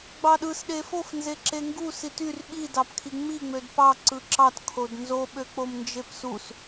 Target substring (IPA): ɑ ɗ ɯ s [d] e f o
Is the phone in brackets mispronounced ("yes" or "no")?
yes